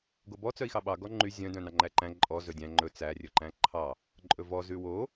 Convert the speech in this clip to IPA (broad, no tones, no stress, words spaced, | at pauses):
ɡobɔ t͡sœi̯xɑɓɑ ɡɔŋ͡ǃy zʲœ̃ dœ̃nɑŋ͡ǃæǃæ̃ ǃʼɔ zɵdʲæ̃ ŋ͡ǃɵ t͡sæ rʲɵǃæ̃ǃʰɑ | ǃʼɵvɔ zʉwo